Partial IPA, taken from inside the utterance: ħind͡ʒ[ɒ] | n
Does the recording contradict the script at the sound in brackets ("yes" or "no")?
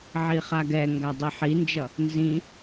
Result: yes